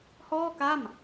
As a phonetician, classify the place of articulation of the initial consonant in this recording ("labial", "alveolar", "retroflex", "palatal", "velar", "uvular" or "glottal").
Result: glottal